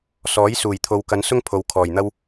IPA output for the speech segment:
s ɔː˨˥ j s uː˨˩ j t̪ʰ o˨ w k ɐ˨˧ n s ʊ˥ ŋ pʰ o˨ w kʰ ɔː˨˩ j n̪ ɐ˥ w

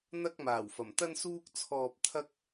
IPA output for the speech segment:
n̪ ɐ˥ k̚ m aː˨˩ w f ɐ˨˩ m t̪ ɐ˥ n s uː˥ k̚ t͡sʰ ɔː˧ p̚ t̪ʰ ɐ˥ k̚

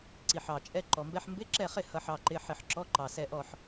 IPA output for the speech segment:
ǀ i˨˩ ħ ɑ˨˩ t͡ʃʼ ɛ˧˥˧ ǃ ɔ˨˩ m b ɛ˧˥˧ ħ m b ɪ˧˥˧ ǁ ɛ˦˨ χ ɪ˦˨ h ʌ˦˨ ħ ɑ˦˨ ǃ ɪ˧˥˧ ħ ɪ˦˨ ħ ǁ ɔ˧˥˧ ǃ ɑ˨˩ s ɛ˦˨ ʔ ɔ˦˨ ħ

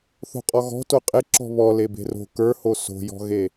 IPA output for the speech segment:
θ o̤ qʼ ɔ ɣ ɔ̤ t o qʼ e ǁ ɔ̤ β ɔ l e b e̤ r o̤ k ə˞ h o s o̤ j ɔ̤ ɣ e

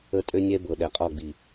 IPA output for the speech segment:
ə˦ tʼ ø˦ nʲ ɛ˦ b ɤ˨ ɗ ɛ˨ qʼ ɔ˦˨ ɡ͡b i˨

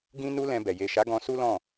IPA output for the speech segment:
ɡ ĩ˦ n u˦ l ɛ̃˧ b ɛ˨ j e˨ ʃ a˨˦ ɡ ɔ̃˧ s u˦ l ɔ̃˦˨

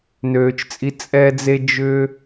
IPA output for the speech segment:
n øː˧ t͡ʃ t͡sʼ i˦ t͡sʼ ɛ˦ d͡z e˦ d͡ʒ ʏ˦

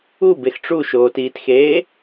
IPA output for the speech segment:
u b e x ʈ͡ʂ u ʃ oː t iː t x eː

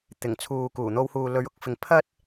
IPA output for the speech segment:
t̪ ɪ˨˩ ŋ t͡sʰ uː˨ k uː˨˩ n̪ o˧ w h uː˨ l ɵ˨˥ ɥ ʊ˧ k̚ f ɪ˨˧ ŋ pʰ ɐ˥ t̚

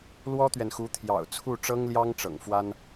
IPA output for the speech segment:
l w ɔ˥ t̪ ɥ ɛ˨ n x u˧˥ t̪ʰ j ɑ̰˨˩ ʊ̯ t͡sʰ u˥˩ ʈ͡ʂ ɤ˥ ŋ l j ɑ˥ ŋ ʈ͡ʂ ɤ̰˨˩ ŋ f w a˥ n

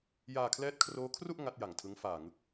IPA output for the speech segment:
j aː˧ kʰ l ɛː˦˥ t̚ kʰ r oː˦˥ kʰ r u˥˩ ʔ ŋ a˦˥ t̚ j a˨˩ ŋ tʰ ɯ˦˥ ŋ f aː˨˩ ŋ ɯ˦˥ k̚

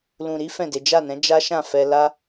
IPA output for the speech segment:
l ũ˨ ɾ i˨˦ f ɛ̃˦˨ d e˨˦ d͡ʒ a˦˨ n ɛ̃˨˦ d͡ʒ a˦ ʃ ã˦˨ f ɛ˧ l a˦

